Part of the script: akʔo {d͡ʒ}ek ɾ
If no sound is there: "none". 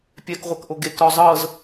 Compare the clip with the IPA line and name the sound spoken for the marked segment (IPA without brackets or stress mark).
ɡ